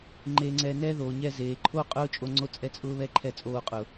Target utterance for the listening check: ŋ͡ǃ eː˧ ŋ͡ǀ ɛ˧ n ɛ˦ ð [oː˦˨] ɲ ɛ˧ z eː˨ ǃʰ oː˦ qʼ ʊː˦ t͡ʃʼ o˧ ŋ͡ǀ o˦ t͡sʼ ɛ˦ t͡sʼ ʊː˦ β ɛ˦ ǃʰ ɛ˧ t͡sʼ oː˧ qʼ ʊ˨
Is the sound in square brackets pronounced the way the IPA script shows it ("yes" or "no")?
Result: no